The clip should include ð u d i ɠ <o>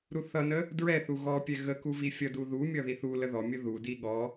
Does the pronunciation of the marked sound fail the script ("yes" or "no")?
yes